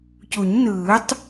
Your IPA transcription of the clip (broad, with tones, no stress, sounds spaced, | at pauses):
c u˨˩˦ ɲ n ɯː˨˩˦ tˤ